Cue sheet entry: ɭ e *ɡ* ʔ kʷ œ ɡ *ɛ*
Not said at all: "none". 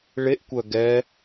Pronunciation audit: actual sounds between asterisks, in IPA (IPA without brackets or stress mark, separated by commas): none, ɛ